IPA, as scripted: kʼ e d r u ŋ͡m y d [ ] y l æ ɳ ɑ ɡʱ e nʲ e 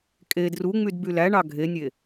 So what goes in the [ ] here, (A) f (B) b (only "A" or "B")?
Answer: B